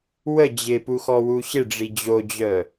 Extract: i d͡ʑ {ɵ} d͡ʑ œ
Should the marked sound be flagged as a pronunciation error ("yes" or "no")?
yes